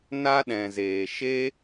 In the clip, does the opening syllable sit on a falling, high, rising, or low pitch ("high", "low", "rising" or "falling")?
high